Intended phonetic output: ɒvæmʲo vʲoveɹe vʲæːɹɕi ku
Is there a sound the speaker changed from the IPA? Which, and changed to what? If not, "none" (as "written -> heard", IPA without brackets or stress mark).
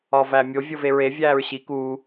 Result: u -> uː